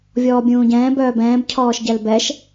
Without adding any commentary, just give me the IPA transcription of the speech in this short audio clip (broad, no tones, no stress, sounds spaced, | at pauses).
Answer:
vʲ ɔː bʲ ũː ɟ ɛ̃ː b œː b ɛ̃ː b cʰ ɔː ʃ ɟ ɛ l b ɛ ʃ